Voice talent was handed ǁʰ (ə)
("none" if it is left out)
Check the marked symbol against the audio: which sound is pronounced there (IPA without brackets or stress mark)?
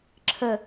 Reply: ə